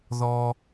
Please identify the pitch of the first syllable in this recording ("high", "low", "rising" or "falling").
low